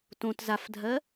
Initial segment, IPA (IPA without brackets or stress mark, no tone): t